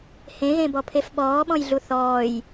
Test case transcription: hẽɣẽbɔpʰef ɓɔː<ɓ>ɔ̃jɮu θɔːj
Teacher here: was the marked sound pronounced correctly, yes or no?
yes